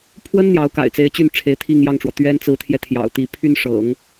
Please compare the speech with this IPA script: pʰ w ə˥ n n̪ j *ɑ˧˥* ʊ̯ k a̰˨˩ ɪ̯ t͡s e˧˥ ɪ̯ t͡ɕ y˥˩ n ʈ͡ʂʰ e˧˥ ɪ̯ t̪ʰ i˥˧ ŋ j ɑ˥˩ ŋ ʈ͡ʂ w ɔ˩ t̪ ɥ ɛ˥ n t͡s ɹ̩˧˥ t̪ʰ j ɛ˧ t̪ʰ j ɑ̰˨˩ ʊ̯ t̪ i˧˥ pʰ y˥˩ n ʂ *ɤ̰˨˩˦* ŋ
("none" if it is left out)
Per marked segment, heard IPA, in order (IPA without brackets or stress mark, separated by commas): ɑ˧˥, ɤ̰˨˩˦